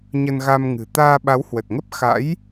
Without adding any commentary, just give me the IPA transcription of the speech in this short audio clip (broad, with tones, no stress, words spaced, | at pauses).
ɲə˧nɣa˧mŋɨ̤˨˩ t̪aː˧ɓa˨˦whwə˨˩t̚ŋə˦˥p̚ xa̰˧˥j